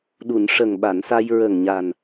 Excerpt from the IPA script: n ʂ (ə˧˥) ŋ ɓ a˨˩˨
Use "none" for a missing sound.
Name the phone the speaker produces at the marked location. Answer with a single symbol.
ə˨˩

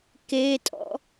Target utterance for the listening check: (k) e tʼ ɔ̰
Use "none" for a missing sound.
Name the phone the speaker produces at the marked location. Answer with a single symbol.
k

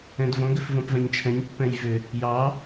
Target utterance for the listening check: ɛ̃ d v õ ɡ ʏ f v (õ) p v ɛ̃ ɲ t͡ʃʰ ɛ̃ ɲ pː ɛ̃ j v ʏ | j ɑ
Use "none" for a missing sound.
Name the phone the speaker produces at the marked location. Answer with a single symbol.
õ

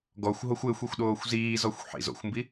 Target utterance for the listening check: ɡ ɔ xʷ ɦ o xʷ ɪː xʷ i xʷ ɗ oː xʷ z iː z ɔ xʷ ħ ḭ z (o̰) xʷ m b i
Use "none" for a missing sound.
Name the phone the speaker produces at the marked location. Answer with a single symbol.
o̰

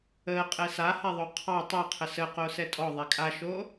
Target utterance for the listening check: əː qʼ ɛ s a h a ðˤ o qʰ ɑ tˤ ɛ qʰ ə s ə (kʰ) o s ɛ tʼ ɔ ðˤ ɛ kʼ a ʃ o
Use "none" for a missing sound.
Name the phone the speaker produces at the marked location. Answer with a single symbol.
q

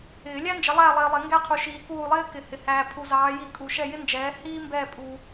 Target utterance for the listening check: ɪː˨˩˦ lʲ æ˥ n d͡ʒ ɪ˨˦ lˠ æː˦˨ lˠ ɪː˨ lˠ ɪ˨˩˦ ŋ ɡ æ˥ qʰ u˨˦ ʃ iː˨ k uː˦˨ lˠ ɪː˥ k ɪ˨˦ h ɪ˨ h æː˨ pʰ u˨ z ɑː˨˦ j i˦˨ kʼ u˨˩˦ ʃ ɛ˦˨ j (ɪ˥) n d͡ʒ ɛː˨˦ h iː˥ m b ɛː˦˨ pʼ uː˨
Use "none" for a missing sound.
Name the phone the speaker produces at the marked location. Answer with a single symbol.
ɪ˥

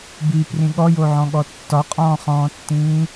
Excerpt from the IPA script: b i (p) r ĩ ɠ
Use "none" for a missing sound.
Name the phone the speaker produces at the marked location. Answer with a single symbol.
p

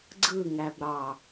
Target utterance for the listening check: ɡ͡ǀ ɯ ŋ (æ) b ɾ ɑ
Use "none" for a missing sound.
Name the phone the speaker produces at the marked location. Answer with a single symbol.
æ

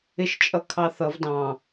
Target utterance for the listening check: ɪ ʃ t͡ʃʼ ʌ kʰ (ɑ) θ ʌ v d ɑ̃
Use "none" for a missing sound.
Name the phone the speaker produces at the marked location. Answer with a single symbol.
ɑ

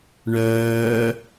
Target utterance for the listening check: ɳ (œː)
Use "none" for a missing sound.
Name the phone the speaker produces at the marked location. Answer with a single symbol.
œː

